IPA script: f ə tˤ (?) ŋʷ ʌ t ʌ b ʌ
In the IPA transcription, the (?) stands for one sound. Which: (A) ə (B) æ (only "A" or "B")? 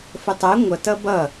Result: B